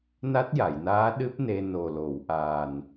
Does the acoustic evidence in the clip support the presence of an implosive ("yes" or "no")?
yes